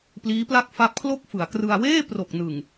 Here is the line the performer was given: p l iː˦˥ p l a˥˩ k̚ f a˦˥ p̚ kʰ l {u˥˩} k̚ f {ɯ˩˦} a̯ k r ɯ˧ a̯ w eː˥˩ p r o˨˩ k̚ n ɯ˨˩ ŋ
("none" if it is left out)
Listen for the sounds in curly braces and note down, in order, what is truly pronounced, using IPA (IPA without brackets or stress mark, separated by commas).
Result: o˥˩, ɯ˩˦